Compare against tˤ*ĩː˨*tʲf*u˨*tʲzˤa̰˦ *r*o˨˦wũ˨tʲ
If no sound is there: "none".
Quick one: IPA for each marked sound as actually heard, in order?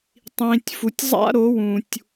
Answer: ĩː˨, u˨, ɾ

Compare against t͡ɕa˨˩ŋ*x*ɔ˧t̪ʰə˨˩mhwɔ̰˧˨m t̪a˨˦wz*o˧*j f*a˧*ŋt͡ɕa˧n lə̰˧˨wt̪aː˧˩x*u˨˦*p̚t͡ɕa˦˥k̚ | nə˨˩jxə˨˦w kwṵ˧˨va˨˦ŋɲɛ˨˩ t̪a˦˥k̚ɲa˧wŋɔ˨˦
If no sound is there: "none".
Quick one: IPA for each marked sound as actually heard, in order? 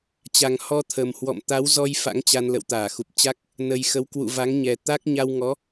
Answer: h, ɔ˧, a̰˧˥, u˨˩

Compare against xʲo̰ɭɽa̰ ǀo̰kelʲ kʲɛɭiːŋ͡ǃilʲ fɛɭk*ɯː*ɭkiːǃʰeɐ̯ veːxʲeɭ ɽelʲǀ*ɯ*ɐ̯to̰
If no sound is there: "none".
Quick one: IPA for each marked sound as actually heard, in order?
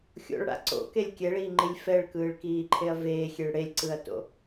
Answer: ɯː, ɯ

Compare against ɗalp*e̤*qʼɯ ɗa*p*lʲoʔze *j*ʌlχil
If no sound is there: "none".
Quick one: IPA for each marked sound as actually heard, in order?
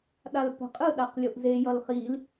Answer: ɛ̤, q, j

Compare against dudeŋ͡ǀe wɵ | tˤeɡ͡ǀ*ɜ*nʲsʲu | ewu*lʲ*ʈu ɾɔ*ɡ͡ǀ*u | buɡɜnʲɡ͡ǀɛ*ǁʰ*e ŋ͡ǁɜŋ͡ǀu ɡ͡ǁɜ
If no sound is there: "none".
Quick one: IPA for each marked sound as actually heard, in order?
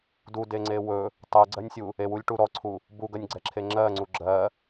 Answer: ɜ, lʲ, ǀʰ, ǁʰ

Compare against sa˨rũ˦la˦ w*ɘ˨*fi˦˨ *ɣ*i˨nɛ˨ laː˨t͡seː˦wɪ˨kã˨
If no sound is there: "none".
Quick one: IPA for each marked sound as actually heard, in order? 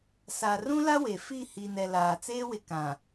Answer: e˨, h

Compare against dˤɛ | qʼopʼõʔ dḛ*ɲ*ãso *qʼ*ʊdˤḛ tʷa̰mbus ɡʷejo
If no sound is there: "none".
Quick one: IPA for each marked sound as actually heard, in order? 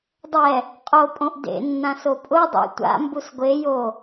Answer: nː, pʼ

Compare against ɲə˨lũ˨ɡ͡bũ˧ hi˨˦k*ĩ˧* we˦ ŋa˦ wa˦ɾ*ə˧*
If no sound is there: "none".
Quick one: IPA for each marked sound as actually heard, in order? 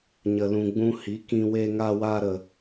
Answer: ĩ˧, ə˧

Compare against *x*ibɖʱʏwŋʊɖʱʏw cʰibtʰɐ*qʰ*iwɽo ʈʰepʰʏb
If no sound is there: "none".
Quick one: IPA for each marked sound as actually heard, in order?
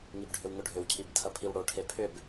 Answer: ŋ, pʰ

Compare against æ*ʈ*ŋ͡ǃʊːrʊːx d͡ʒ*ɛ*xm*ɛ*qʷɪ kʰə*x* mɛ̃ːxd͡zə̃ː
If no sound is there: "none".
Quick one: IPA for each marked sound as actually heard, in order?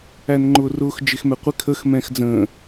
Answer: n, ɪ, ɛ, x

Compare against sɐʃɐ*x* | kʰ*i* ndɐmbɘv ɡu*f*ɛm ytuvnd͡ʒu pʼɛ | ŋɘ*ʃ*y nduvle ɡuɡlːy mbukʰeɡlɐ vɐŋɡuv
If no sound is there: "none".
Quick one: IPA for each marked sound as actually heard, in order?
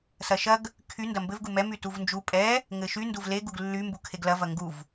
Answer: ɡ, y, m, ʃ

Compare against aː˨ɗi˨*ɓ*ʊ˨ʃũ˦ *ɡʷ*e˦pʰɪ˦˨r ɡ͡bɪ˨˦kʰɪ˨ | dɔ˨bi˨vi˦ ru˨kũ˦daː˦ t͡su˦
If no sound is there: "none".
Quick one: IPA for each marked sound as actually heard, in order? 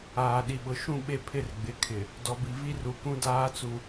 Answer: ɓ, ɓ

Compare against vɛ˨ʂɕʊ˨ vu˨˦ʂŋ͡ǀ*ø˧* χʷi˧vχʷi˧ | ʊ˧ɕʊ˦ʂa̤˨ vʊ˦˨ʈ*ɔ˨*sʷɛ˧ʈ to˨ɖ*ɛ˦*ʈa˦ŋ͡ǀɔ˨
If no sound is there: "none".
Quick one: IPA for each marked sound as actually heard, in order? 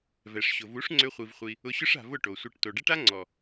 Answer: ø˧, o˨, ɛ˦

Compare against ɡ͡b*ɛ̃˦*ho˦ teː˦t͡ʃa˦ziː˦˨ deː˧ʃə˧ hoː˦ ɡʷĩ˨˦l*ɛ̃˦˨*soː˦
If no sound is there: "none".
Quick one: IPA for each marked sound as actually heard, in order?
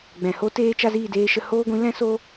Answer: ɛ̃˨, ɛ̃˦

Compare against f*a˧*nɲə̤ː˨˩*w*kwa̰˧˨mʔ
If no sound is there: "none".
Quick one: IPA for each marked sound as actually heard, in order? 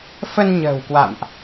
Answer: ə˧, w

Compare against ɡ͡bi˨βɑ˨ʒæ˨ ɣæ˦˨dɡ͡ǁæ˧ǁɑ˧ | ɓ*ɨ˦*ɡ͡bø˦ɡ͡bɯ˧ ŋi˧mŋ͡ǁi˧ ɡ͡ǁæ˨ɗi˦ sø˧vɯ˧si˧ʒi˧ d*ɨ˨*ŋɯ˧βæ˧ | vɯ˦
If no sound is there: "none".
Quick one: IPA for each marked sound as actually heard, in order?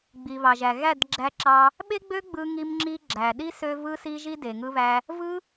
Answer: e˦, e˨

